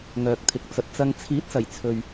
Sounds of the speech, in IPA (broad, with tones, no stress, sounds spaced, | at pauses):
ŋ œː˨ k̚ t̪ʰ ɪ˨ k̚ t͡s ɐ˨ t̚ t͡s ɐ˧ ŋ t͡sʰ iː˨˥ t̚ s ɐ˨˩ j t͡sʰ ɵ˨ ɥ